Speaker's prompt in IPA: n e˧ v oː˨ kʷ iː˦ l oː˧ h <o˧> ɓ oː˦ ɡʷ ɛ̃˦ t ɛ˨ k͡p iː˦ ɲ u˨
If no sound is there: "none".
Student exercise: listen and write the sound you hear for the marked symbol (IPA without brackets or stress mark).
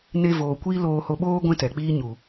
o˧